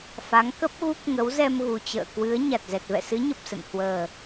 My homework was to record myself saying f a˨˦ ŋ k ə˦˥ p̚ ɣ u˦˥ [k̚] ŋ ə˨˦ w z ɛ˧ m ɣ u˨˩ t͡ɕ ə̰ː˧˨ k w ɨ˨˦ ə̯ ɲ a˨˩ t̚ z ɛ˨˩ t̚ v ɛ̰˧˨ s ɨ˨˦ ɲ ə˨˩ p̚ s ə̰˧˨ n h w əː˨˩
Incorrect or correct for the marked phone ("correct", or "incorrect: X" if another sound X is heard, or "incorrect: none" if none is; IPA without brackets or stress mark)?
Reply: correct